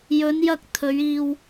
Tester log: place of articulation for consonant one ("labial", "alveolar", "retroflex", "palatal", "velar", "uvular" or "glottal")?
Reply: palatal